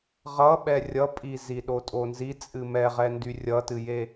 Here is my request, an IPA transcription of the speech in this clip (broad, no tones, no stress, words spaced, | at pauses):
ʁʌɓɛ rʲʌpʼi ziɗotʼonzi t͡sʼɨmɛʁɛ ndyrʲʌtɨje